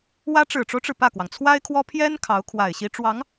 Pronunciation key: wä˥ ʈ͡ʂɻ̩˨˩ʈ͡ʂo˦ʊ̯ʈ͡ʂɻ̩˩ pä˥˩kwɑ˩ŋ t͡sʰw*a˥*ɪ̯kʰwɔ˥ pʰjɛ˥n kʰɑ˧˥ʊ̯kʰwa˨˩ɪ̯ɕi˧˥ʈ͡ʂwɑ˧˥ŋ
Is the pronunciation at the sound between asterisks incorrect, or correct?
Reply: correct